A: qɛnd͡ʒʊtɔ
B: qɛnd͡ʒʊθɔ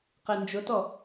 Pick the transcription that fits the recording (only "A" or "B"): A